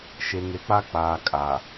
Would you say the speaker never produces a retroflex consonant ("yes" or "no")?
yes